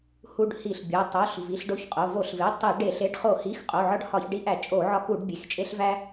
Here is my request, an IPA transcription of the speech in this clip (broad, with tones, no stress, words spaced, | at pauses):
hu˧ɖhi˧˩˧ɬbʲo˩˧˩ tˤo˩˧˩ɬ vi˩˧˩ɬɖo˧çqʼo˩˧˩ vo˧˩˧ɬve˩˧˩ tˤi˧˩˧ ɖe˧˩˧ɬ e˩˧˩ɖχo˧˩˧hi˩˧˩x qʼo˩˧˩ʕɒ˧ɖ hɒ˧˩˧çɖi˧ʔæ˧˩˧ t͡ʃʼo˧˩˧ ʕɒ˧ku˧˩˧ɖbʲe˩˧˩xt͡ʃʼe˧ɬ væ˧